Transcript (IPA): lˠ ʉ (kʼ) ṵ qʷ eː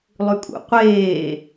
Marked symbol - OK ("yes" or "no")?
yes